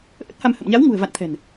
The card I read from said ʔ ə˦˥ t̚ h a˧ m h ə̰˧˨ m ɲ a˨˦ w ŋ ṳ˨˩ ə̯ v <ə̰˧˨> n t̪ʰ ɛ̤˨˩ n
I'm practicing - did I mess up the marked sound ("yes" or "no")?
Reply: yes